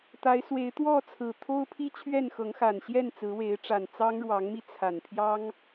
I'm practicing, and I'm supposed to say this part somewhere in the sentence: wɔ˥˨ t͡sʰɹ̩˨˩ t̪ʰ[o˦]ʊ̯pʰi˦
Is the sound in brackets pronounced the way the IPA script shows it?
yes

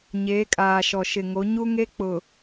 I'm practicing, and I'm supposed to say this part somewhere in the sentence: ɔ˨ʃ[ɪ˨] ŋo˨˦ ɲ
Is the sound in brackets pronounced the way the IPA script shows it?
yes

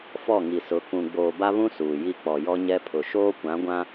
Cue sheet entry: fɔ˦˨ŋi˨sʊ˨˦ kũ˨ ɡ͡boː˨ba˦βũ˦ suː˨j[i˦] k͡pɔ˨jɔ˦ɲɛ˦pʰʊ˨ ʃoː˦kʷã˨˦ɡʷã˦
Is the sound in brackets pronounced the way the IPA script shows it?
yes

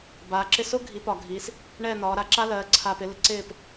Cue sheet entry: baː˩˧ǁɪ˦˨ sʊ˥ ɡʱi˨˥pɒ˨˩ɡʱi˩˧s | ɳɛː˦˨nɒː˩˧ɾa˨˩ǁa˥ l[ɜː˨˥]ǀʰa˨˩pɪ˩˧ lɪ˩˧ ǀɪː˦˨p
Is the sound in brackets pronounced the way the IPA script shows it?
no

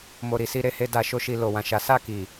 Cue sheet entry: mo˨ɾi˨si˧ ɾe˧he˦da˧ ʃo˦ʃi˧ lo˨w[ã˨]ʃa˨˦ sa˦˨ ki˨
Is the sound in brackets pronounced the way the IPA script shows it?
yes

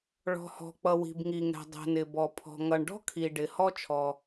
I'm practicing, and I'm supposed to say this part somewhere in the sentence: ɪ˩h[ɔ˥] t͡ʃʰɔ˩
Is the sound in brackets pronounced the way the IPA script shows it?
yes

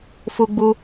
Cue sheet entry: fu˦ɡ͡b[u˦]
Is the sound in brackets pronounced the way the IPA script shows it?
yes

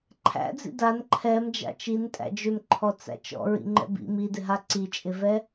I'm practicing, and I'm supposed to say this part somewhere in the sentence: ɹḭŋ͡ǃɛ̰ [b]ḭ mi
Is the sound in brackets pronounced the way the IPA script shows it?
yes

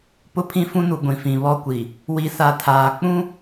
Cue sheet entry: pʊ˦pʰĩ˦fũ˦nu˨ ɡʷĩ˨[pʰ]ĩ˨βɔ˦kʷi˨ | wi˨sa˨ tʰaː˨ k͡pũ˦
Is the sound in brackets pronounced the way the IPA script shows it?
no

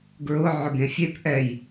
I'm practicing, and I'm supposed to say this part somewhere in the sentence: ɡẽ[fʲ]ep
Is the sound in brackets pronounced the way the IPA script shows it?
yes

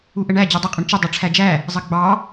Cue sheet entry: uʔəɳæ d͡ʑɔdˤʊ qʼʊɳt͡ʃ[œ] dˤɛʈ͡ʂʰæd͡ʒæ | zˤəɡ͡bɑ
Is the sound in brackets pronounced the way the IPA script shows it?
no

